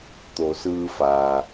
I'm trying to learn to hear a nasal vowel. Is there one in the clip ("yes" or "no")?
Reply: no